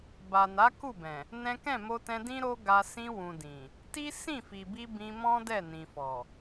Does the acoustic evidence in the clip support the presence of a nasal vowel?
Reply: yes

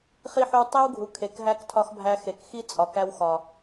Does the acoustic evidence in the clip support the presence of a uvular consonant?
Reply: yes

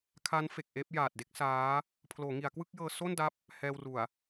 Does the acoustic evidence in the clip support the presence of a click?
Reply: no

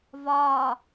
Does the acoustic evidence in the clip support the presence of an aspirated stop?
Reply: no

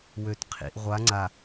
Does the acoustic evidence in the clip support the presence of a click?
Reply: yes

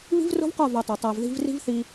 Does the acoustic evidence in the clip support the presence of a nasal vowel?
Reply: no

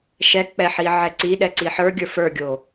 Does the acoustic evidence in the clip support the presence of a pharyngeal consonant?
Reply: yes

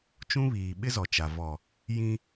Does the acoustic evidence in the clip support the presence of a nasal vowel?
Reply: yes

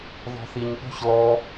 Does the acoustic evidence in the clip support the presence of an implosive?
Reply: yes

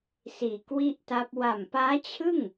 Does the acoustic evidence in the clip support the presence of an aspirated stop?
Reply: yes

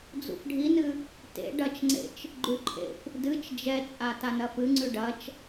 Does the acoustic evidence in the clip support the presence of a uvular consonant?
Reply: no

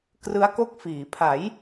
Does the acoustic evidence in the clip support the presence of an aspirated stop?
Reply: yes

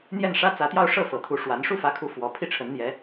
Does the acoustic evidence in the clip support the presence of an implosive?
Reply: no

